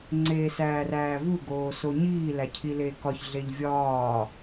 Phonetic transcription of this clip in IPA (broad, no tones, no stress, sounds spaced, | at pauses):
ŋ͡ǀ eː s æː r æː v u ɡ oː s o ɲ iː l æ cʰ i l eː k ɒ ç ɮ e ʎ vʲ ɒː